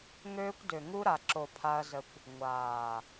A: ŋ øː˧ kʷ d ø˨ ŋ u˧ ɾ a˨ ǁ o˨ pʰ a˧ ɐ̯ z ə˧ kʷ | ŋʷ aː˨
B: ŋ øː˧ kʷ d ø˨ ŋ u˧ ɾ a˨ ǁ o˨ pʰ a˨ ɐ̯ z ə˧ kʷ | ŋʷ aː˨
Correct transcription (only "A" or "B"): A